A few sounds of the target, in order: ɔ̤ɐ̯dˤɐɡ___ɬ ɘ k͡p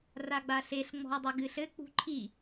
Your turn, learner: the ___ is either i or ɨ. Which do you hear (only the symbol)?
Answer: ɨ